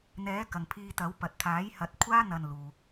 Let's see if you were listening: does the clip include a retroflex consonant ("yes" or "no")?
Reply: no